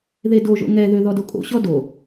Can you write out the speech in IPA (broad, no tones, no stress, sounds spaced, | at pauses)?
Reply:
ð e d o ʒ o̰ ŋ ɛ ð ø ð ɔ d o kʼ o̰ ɕ ɔ d o